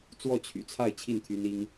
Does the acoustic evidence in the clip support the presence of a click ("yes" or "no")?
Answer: no